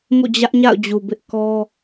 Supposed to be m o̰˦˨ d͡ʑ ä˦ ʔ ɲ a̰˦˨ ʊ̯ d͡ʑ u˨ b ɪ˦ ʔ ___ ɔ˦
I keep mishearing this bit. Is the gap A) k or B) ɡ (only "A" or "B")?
A